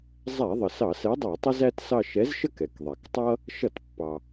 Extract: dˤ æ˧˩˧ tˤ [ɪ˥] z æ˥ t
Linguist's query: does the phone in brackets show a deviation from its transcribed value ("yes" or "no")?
yes